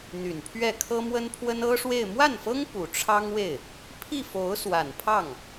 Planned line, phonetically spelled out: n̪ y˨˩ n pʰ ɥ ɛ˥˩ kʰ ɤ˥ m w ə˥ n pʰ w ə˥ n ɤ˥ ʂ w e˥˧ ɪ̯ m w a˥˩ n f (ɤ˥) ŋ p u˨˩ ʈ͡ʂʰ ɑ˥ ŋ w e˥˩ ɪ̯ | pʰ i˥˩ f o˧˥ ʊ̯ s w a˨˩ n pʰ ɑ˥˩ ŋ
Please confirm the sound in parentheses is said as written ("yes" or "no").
yes